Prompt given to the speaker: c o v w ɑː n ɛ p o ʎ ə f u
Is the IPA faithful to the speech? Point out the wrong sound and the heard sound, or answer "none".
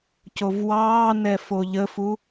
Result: p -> f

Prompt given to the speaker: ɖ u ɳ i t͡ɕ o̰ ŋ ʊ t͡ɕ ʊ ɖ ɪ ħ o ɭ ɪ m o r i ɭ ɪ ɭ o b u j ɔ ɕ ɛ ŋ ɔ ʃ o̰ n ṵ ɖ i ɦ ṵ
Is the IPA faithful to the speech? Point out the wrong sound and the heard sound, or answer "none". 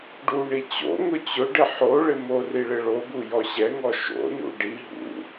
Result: none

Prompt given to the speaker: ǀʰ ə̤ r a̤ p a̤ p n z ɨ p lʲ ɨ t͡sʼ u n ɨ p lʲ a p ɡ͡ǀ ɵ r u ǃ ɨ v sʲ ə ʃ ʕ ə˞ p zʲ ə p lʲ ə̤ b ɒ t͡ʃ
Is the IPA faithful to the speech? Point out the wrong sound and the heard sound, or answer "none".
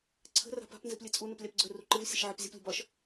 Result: t͡ʃ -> ʃ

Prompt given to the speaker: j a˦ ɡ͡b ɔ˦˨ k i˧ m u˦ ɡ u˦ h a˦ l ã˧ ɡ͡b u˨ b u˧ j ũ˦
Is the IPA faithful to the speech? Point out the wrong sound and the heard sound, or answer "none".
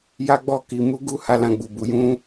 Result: none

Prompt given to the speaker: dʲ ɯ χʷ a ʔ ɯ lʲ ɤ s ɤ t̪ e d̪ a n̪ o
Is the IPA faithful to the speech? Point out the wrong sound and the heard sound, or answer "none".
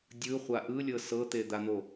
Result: none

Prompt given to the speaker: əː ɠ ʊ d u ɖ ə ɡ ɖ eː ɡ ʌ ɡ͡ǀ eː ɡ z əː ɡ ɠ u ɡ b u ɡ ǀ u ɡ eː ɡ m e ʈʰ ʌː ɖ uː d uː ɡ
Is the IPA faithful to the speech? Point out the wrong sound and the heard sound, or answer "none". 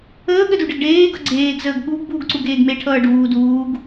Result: ʊ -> ə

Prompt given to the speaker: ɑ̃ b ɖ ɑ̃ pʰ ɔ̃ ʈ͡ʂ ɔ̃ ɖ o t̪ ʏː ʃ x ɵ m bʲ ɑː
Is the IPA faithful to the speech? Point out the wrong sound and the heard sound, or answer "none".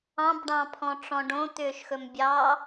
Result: o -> õ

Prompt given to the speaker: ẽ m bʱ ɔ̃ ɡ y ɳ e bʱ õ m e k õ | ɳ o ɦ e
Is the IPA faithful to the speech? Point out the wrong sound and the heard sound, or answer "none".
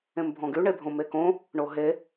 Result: none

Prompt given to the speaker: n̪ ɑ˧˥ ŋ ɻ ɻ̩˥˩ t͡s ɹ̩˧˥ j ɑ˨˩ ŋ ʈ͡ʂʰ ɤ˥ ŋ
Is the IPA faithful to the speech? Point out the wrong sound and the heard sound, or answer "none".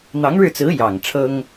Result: none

